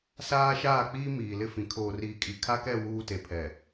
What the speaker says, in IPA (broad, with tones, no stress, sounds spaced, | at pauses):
s aː˦ ʃ aː˦˨ k͡p iː˦ m iː˨ l ɪ˦ f ĩ˨ kʰ oː˨ r iː˨ kʼ i˨ kʰ a˦ k ɛ˦˨ w uː˦ t e˨ pʰ ɛ˨